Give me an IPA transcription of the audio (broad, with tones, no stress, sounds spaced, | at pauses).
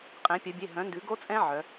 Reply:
qʼ ɛ̃˩˧ pʲ œ˩˧ bʲ e˩˧˩ ɦ œ̃˩˥ n d ʉ˩˥ ɡ o˦˥ t͡sʼ ɛ̃˦˥ ʕ œ˩˧